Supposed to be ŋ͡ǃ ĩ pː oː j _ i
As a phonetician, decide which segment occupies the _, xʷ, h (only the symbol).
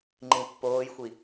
xʷ